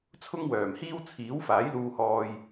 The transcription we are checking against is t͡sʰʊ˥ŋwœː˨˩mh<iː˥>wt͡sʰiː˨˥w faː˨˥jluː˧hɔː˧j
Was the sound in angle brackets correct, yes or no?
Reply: yes